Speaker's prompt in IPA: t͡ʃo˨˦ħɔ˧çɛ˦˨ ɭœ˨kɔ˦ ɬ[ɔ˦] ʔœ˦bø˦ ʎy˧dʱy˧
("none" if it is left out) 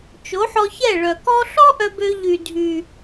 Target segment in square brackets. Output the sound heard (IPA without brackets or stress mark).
ɔ˦